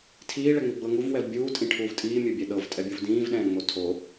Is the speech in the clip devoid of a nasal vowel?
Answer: no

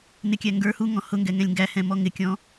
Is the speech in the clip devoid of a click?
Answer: yes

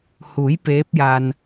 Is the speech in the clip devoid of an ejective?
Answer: yes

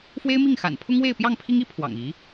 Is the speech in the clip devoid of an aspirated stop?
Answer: no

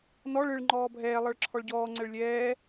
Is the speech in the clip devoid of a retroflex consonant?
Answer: no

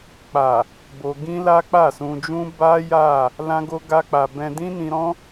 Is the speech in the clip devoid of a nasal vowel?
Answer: no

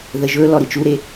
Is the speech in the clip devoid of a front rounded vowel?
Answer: yes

